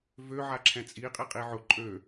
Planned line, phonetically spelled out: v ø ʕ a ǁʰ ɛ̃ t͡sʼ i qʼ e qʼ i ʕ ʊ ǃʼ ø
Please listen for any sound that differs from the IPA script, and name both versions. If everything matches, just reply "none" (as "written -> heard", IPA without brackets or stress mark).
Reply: e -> i